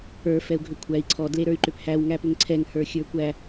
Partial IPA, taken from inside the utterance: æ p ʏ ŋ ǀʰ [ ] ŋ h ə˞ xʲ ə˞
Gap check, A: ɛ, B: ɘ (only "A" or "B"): A